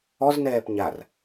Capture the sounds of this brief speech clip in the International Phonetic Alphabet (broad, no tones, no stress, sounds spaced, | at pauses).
ɔ z n ɛː p ɲ a r